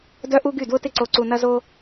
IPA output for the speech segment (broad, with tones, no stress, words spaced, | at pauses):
dœ˦ʔu˦ɡy˦˨ dwʊ˦tɪ˦ǀo˧ ǀu˧nɐ˦zo˦